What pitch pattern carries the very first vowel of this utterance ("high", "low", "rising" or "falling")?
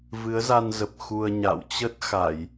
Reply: rising